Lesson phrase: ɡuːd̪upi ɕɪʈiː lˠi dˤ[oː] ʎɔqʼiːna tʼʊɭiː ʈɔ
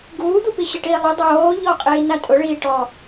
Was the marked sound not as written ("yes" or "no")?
no